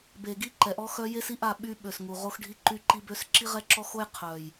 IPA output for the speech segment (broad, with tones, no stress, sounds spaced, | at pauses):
b e˨ ɡ i˦ ǃ ɛ˨ ʔ ɔ˦ x œ˦ j e˦ s i˦ ʔ a˦˨ ɓ y˦ ɓ ø˨ s ŋ u˨ ʁ o˦ x ɖʱ i˦ ǃ y˦ ǃ i˦ b ø˦ s ǁ i˦ ʁ ɛ˦ ǁ ɔ˦ x o˦ j qʰ œ˨ j